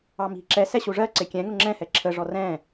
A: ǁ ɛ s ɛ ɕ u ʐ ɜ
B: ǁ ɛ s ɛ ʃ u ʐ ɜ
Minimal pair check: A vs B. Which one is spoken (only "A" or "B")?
A